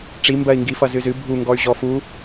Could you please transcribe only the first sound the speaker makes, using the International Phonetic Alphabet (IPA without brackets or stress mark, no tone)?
ʈ͡ʂ